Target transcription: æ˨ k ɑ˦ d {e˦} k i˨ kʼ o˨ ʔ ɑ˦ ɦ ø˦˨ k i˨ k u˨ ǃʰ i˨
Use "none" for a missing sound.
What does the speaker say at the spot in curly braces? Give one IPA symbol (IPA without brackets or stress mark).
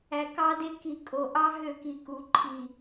e˦